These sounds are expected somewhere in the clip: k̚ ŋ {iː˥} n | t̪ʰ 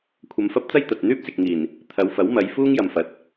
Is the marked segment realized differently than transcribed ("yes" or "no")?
yes